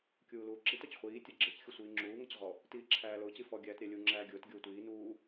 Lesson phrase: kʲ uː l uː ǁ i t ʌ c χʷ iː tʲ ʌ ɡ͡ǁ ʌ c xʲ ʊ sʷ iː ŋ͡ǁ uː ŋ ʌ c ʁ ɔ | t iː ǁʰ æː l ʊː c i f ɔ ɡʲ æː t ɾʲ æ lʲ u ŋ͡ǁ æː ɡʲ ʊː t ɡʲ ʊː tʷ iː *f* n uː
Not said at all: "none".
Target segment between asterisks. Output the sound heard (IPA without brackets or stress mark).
none